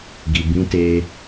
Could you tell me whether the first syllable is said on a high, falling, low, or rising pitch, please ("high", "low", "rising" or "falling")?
low